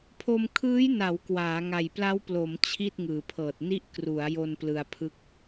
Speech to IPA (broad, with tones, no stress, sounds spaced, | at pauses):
pʰ o˧ m kʰ ɯː˦˥ j n a˩˦ w k w aː˩˦ ŋ a˨˩ j p l a˦˥ w p l o˩˦ m t͡ɕʰ i˥˩ t̚ ŋ ɯː˩˦ pʰ ɤː˨˩ t̚ n i˥˩ ʔ k r u˩˦ a̯ j o˧ n p l ɯ˧ a̯ pʰ ɯ˥˩ k̚